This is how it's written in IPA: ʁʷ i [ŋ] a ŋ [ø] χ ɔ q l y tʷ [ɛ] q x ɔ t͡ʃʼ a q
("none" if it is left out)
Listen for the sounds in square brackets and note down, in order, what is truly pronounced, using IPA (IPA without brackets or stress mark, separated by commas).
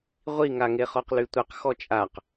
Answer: ŋ, e, ɛ